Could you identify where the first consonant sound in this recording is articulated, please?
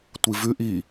alveolar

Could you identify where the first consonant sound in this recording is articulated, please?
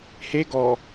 glottal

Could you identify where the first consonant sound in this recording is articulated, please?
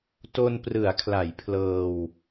alveolar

